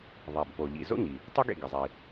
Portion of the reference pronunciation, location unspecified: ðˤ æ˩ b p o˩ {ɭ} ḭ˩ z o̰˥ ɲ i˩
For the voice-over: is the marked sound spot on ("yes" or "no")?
no